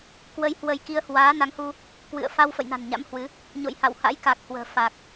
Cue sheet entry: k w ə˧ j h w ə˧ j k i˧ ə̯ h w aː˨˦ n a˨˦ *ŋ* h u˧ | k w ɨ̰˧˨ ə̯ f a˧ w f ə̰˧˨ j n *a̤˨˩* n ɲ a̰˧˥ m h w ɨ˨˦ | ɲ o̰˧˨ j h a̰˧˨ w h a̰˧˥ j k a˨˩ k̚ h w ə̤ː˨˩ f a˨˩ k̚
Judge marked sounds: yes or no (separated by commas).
yes, yes